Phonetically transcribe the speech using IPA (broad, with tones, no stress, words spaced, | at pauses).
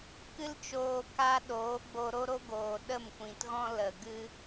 kɨ˧lt͡ʃoː˨ka˧ ɗoː˨˦ɡ͡bo˧ ɾo˦ɾo˦ɡoː˨ ɗə˦˨mkʷĩ˨tɣɔ̃˦ lə˨ɡɨ˦